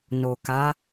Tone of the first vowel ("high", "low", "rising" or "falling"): low